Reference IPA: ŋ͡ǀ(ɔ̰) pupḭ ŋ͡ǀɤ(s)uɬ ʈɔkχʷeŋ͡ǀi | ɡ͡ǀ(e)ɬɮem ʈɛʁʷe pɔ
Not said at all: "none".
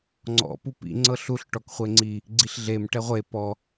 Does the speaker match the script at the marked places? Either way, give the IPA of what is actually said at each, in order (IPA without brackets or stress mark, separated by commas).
ɔ̰, ɬ, i